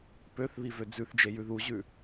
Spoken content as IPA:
p ø θ β i v ø d͡z ʉ θ d͡ʒ e j ʉ ð u ʑ ʉ

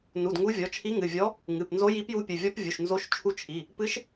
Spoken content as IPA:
n u˩˧˩ d ŋ u˧˥ vʲ ɔ˩˧˩ t͡ʃʰ i˧˥ ŋ ɨ˩˧˩ vʲ ɔ˧˥ | ŋ ɨ˩˧˩ p n z o˧˥ j i˧˥ p j u˧˥ pʲ ɨ˩˧˩ vʲ ɔ˧˥ p vʲ u˩˧˩ ʃ n z o˧˥ ʃ t͡ʃʰ u˧˥ t͡ʃʰ i˩˧˩ | p ɨ˧˥ ʃ

